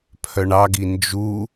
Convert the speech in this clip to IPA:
pʰ œ ɳ ɑ ɡ i n d͡ʒ u

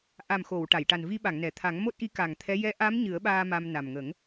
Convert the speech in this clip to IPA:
ʔ a˨˩ m x o˨˩˨ w ʈ a˨˩˨ j ʈ a˨˩ n v i˧ ɓ a˨˩˨ ŋ n ɛ˨˩˨ t̪ʰ a˨˩˦ ŋ m o˦˥ t̚ ʔ i˧˥ k a˨˩ ŋ t̪ʰ ɛ˧˥ j ɛ˧˥ ʔ a˧˥ m ɲ ɨ˨˩˦ ə̯ ɓ aː˧ m a˧ m n a˨˩ m ŋ ə˨˩˦ ŋ

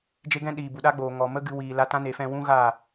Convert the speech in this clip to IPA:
d͡ʒ e˧ ɡ ɛ̃˧ ɗ iː˨ b u˨ ɗ a˦ ɡ͡b oː˨ ŋ ɔ˨ m ə˦ ɡ ɨ˧ w iː˨ l a˧ t ã˦ n e˨˦ f ɛ̃˧ w ũ˦ ɣ a˦˨

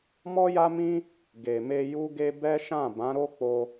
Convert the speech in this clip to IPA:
m ɔ˦ j a˦ m ĩ˦ | ɡ e˨ m e˧ j u˦ ɡ e˦ b ɛ˦ ʃ ã˦˨ b ã˨˦ ɾ o˦ k͡p o˧

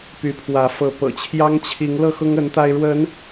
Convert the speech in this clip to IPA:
p y˨˦ pʰ w ä˨˦ f ɤ˨˦ p ɤ̰˨˩ t͡ɕʰ j ɑ˦ ŋ t͡ɕʰ i˨˦ ŋ l ɤ˥˨ x ʊ˦ ŋ ə˨˦ n t̪ a˧ ɪ̯ ɻ w ə˨˦ n

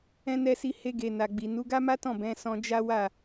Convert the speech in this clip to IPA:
ɛ̃˧ n ɛ˧ s i˧ h e˧ ɡ e˨ n a˨ ɡ͡b i˨ n u˨˦ ɡ a˦ m a˦ t ɔ̃˦˨ b ɛ̃˨˦ s ɔ̃˧ d͡ʒ a˦ w a˦˨

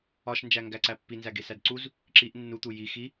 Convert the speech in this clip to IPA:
ɒ ʃ n d͡ʒ æ ŋ ɡ æ ǀ æ pː i n z æ ɡ e s æ d ǀ u z | ǁ i ʔ nː u t̪ u j i x i

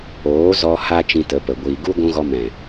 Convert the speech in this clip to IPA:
oː˨˦ z ɔ˧ h a˧ t͡ʃ ĩ˧ t ə˨˦ p ə˨ ɡʷ iː˨ ɡ u˦ ɡʷ ũ˧ ɣ ɔ˧ m ɛ̃˨

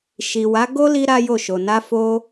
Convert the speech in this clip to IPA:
ʃ i˨ w a˨˦ ɡ o˦ l i˧ ɾ a˦ j o˦˨ ʃ o˨ n a˧ f o˧

